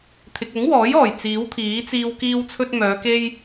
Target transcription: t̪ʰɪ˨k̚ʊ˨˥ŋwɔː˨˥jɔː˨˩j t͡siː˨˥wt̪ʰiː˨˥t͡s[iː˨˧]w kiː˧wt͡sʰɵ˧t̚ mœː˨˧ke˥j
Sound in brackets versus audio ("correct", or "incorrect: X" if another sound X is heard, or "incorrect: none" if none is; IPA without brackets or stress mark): incorrect: iː˧